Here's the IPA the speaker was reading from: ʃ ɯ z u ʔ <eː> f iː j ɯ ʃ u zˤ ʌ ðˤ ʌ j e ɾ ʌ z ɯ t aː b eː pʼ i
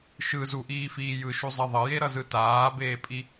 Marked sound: incorrect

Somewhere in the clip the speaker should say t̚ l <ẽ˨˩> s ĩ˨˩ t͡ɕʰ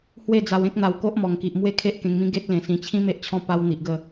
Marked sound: correct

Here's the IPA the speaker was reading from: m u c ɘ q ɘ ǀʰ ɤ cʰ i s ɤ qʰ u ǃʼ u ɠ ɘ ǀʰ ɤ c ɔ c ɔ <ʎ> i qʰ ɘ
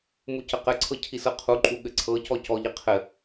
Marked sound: correct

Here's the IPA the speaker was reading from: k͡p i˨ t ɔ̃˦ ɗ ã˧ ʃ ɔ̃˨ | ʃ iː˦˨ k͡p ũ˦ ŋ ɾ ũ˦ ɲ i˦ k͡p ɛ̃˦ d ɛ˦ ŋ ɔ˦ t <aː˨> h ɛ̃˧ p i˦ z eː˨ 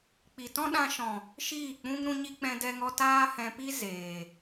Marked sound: incorrect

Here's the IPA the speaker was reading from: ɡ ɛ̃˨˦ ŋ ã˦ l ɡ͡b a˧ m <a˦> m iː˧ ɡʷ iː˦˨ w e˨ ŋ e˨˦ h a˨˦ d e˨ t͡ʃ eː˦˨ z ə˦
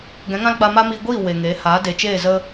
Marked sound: correct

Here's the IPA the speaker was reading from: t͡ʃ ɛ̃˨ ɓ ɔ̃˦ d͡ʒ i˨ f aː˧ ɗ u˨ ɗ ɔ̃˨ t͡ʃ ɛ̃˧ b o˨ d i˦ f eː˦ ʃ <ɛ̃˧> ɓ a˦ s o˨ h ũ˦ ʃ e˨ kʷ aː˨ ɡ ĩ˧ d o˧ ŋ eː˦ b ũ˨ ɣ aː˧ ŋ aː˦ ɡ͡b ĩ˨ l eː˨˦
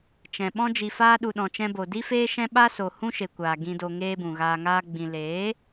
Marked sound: incorrect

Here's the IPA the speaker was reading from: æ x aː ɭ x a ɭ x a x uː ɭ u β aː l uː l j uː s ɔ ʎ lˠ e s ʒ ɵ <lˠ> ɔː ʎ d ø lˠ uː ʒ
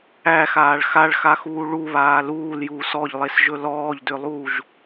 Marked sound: incorrect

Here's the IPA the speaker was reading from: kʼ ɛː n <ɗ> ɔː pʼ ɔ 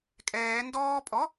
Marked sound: incorrect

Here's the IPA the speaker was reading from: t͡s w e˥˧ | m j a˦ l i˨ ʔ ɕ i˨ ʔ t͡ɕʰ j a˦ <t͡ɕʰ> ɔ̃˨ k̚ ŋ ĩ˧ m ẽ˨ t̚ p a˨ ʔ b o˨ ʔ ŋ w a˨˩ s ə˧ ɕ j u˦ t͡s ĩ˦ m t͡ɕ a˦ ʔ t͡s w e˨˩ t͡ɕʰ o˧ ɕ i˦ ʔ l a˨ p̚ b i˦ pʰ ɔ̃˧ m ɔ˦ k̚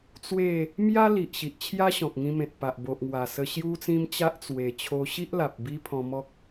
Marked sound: incorrect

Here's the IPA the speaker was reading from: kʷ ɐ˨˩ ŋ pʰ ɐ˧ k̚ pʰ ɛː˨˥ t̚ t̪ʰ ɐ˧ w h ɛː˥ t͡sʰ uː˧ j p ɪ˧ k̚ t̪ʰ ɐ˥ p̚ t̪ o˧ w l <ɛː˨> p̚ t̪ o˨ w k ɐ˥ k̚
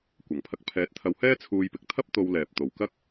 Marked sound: correct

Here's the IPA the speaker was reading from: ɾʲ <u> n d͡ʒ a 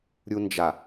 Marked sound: correct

